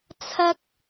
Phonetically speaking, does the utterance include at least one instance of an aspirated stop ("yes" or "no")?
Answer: yes